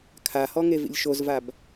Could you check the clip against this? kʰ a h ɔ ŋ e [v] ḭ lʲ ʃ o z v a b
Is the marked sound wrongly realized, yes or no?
no